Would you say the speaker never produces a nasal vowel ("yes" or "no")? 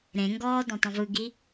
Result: no